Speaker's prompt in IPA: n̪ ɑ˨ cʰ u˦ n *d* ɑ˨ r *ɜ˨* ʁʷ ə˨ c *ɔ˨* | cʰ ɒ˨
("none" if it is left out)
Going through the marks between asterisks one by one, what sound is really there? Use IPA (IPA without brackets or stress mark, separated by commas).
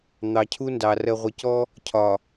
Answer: d, ɜ˨, ɔ˦